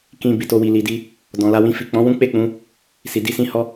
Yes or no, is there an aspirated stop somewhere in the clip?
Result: no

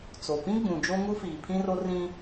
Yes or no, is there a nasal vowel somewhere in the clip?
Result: yes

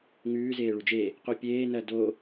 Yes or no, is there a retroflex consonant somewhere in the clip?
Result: yes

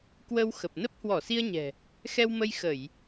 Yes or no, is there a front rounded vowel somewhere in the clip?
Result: no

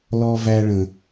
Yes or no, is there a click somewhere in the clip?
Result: no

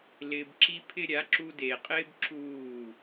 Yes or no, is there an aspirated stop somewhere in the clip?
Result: yes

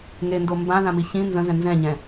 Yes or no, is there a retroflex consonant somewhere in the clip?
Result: no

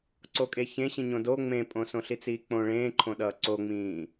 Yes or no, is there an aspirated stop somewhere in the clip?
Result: yes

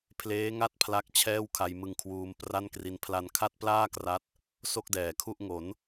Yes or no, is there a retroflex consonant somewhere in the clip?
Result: no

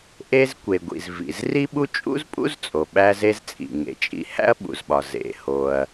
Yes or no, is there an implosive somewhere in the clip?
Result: yes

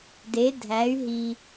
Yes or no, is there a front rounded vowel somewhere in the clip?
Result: yes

